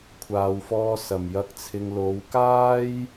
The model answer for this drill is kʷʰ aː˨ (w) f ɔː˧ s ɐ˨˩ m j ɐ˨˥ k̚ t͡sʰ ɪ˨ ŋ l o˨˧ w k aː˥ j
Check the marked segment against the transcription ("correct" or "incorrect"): correct